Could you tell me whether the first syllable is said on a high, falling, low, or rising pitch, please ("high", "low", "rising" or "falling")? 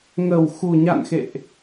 low